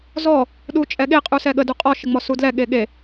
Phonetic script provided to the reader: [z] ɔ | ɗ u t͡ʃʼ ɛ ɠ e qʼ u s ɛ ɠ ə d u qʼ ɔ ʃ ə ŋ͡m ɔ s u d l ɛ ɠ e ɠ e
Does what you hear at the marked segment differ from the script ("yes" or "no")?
no